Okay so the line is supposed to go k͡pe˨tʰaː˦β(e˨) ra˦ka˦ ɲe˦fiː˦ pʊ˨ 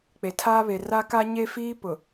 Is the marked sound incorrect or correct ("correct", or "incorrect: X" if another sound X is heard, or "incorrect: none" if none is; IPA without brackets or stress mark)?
correct